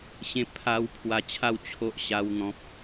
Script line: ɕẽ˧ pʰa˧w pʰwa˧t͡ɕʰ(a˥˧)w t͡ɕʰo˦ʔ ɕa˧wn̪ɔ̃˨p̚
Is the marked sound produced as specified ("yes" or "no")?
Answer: yes